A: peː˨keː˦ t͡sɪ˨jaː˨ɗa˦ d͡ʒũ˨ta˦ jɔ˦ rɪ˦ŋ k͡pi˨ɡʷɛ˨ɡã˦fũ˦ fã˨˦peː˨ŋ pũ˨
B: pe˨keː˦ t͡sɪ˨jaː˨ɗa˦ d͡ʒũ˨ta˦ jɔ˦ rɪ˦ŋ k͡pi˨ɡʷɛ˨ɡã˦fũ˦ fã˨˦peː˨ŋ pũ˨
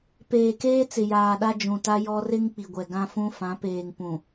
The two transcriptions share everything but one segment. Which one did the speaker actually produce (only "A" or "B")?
A